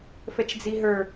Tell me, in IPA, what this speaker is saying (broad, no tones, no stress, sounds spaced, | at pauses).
f ɛ t͡ʃ d͡z i ɦ ə˞